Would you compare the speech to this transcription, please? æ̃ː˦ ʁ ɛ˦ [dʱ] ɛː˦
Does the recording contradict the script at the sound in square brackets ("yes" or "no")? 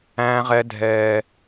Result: no